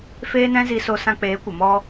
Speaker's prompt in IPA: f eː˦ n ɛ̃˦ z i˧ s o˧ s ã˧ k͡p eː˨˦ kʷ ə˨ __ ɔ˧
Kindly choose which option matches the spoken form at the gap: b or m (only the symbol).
m